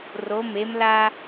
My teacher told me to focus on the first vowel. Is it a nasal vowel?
no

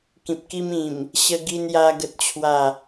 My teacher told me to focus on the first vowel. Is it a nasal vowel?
yes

